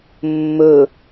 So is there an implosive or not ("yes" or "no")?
no